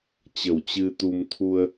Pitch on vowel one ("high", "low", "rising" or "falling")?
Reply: low